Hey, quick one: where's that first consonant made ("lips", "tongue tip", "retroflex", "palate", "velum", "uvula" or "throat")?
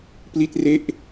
lips